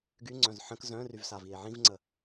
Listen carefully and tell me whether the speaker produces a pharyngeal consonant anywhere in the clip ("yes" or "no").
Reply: yes